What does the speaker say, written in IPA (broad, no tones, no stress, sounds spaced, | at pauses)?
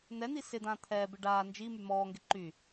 n̪ ɛ n̪ i s ɪ d̪ ãː t̪ʰ ɛː b ɪ ɖ aː n d͡ʒ i m y m ɔː ŋ ɡ ɪ ǃ y